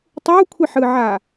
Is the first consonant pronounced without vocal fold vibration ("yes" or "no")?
yes